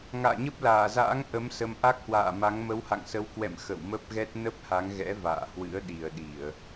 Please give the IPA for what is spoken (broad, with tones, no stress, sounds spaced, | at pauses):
ŋ a̰ː˧˨ ɲ ə˦˥ p̚ l aː˧˩ z a̰ː˧˥ ŋ ʔ ə˨˦ m s ə˧ m ʔ a˦˥ k̚ h w a̰ː˧˨ m a˨˦ ŋ m ə˨˦ w h a̰˧˨ ŋ s ə˨˦ w k w ɛ̰˧˨ m x ə̰˧˨ w m ə˦˥ p̚ ɣ ɛ˦˥ t̚ n ə˦˥ p̚ h a˨˦ ŋ ɣ ɛ̰˧˥ v a̰ː˧˨ h w ɨ̰˧˥ ə̯ ɗ i˨˩ ə̯ ɗ i˧˩˨ ə̯